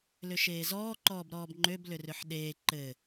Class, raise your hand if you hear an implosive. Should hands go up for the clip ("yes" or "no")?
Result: yes